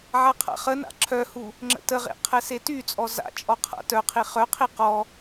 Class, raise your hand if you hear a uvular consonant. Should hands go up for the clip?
yes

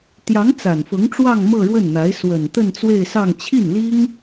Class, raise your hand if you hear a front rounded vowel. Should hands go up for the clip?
no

